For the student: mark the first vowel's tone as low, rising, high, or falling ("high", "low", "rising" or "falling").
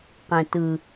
low